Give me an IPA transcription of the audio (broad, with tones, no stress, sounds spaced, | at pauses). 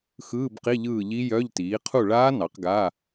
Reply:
x ɯː˧˥˧ b q i˧˥˧ ʎ ɯː˦˨ ʎ i˦˥ j œ˧˥˧ ʎ t iː˩˥ qʰ u˦˨ ɭ aː˦˥ n ɑ˩˥ q ɡ aː˧˥˧